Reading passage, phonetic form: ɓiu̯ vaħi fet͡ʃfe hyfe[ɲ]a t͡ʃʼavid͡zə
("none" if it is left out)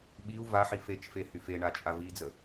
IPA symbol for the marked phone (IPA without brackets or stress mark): ɳ